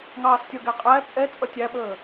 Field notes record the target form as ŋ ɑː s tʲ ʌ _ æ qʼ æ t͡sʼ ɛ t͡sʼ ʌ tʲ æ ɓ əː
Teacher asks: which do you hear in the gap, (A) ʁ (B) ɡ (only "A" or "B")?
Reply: B